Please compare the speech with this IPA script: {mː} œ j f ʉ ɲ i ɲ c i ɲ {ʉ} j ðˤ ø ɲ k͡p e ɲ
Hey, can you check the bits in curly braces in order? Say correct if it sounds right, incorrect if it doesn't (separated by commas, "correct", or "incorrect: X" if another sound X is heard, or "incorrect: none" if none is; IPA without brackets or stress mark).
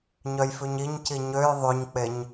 incorrect: ɲ, incorrect: ø